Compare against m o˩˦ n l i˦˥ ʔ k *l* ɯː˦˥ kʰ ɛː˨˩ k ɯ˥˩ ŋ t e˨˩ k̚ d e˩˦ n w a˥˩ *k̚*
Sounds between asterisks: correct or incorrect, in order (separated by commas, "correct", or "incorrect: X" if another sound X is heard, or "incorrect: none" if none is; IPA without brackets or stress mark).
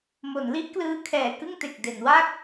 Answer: correct, correct